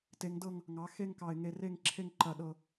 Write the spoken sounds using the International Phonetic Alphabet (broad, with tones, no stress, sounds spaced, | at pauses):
t e˩˧ ŋ d ɤ˦˨ ŋ | ŋ ɑ˩˧ x e˦˨ ŋ k ɑ˨˩ ɪ̯ ŋ e˨˩ r e˦˨ ŋ ǁʰ e˦˨ ŋ ǃ ɐ˨˩ ɗ ɤ˨˩